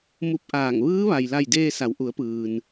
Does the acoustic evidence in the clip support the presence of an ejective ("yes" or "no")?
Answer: no